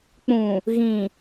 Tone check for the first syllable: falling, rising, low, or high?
low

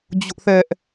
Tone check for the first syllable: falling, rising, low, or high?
high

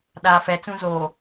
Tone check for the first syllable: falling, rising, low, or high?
low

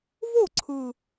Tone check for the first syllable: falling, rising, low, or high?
falling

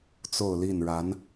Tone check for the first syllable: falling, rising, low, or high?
falling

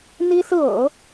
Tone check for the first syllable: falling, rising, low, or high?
high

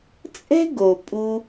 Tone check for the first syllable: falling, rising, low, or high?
high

